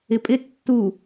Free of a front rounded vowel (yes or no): yes